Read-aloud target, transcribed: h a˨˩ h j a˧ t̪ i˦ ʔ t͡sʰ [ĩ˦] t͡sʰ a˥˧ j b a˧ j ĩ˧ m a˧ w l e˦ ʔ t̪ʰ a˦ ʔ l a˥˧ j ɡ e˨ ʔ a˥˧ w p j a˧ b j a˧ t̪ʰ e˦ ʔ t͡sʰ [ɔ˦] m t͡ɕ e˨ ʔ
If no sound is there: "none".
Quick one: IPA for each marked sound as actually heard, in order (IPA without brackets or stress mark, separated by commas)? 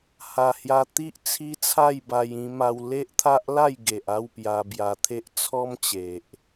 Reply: i˦, ɔ˦